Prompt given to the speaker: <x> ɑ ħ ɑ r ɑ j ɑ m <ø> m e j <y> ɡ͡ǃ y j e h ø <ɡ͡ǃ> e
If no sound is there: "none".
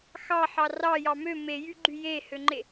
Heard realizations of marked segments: x, ø, y, ŋ͡ǃ

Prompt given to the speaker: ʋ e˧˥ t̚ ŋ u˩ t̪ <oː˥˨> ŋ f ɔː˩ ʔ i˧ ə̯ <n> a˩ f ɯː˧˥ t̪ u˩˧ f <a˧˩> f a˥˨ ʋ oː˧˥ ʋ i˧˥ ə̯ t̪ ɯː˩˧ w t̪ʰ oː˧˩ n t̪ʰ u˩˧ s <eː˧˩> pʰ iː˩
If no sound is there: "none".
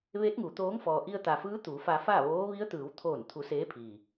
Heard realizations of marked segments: oː˧˥, t̪, a˧, eː˧˥

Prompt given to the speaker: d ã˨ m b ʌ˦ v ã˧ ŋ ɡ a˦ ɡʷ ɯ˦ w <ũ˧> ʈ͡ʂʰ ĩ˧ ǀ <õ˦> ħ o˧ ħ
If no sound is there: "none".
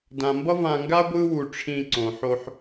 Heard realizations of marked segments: u˧, õ˨

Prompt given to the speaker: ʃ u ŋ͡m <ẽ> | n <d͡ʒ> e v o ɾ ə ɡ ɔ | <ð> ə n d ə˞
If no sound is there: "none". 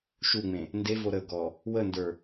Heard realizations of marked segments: ẽ, d, w

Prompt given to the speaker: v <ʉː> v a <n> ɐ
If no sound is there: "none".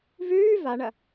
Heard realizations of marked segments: ʉː, ɳ

